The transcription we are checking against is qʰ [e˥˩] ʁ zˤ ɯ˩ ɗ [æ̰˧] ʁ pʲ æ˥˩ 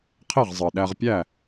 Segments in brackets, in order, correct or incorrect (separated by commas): correct, incorrect